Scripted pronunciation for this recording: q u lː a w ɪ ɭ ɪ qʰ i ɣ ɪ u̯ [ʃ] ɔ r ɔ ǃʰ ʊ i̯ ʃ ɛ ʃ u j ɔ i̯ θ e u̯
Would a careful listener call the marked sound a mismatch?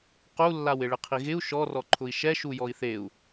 no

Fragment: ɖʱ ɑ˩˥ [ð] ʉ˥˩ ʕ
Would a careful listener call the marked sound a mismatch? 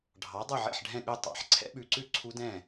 yes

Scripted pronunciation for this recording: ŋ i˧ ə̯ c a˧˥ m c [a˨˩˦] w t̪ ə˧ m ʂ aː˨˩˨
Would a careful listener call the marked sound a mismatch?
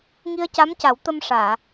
no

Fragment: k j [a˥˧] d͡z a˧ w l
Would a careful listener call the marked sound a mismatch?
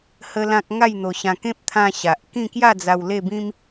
no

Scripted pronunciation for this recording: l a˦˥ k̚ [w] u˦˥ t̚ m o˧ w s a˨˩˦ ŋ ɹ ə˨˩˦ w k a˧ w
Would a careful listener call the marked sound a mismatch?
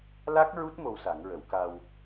yes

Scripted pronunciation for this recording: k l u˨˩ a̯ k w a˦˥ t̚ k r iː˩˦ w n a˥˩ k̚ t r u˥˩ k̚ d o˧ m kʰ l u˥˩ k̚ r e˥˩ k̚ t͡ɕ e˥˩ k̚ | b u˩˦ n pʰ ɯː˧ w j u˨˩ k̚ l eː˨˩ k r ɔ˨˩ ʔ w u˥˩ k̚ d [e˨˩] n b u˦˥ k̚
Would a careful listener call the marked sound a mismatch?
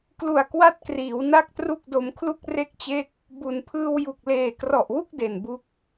no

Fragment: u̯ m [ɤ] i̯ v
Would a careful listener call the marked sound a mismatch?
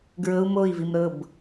yes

